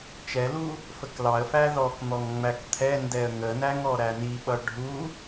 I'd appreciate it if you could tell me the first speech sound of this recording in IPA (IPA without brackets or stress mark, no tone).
t͡ʃ